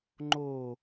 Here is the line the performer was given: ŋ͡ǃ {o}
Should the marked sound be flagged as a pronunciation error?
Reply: no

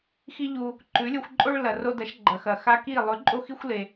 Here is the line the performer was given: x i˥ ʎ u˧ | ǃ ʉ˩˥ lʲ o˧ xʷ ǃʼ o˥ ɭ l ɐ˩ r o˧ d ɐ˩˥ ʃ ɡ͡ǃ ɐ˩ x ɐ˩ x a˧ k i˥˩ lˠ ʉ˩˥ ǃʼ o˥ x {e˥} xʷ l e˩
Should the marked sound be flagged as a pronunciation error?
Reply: yes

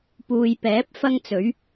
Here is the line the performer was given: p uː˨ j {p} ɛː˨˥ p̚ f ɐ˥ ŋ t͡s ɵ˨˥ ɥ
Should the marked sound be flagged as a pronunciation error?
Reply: no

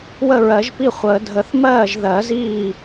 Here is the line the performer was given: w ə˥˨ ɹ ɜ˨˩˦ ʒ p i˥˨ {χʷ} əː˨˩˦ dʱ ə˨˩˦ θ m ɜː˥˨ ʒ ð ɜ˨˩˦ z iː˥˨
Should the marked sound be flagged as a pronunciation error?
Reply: no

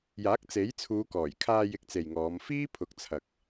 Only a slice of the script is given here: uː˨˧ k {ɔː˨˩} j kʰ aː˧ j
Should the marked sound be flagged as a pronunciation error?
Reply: no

